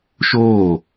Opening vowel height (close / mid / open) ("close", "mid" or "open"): mid